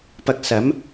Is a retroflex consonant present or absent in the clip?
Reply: absent